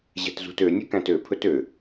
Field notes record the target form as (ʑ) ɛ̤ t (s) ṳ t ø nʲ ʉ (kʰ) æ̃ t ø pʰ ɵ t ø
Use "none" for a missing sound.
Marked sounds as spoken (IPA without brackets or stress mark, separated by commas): ʑ, z, k